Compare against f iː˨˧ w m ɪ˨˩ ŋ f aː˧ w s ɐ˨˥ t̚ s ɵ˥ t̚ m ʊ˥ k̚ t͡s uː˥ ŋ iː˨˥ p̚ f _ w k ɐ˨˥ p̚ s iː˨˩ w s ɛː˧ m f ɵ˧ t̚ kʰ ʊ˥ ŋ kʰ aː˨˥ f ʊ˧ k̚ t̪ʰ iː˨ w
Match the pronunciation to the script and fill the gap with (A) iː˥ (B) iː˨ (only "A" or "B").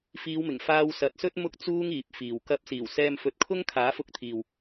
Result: B